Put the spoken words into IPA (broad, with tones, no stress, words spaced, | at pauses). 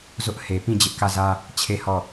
zʊ˦ʔ he˨ pĩ˦˨d͡ʑɪ˦ʔkä˦˨zä˦ | t͡ɕʰe˦˨hɔ˦˨